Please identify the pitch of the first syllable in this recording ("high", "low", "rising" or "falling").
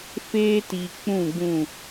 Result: high